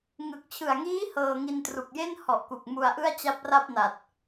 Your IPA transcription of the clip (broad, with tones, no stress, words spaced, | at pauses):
ŋɯ˨˩k̚t͡ɕʰɯ˨˩a̯ŋiː˦˥ hɤː˧ŋi˧ntru˨˩k̚je˥˩n hɔ˨˩ʔku˨˩k̚ mu˧a̯ʔɯ˥˩a̯ t͡ɕa˦˥p̚ra˥˩p̚na˨˩t̚